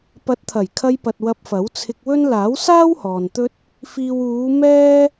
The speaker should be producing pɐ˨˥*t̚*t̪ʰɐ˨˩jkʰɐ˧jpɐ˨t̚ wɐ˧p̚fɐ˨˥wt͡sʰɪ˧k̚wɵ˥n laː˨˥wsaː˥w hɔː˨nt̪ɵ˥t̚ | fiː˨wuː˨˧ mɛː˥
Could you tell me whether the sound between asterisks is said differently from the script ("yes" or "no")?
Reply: no